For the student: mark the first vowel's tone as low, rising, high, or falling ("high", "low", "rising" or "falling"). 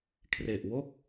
low